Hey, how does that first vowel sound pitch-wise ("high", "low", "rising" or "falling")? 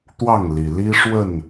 falling